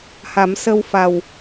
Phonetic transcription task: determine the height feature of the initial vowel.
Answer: low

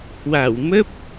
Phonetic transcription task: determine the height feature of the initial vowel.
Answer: low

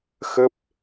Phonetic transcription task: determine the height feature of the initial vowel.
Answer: mid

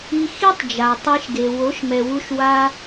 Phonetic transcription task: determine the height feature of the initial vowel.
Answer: high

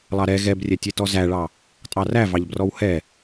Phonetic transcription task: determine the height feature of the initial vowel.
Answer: low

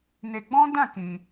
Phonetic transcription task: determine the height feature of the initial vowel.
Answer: mid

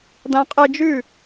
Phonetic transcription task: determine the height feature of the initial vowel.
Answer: low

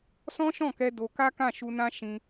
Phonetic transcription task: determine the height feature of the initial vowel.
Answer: mid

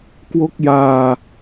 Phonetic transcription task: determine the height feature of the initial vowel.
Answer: mid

